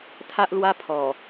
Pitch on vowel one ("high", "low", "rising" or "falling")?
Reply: high